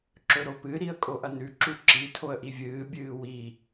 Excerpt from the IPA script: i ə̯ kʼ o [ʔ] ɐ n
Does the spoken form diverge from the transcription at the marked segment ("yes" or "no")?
no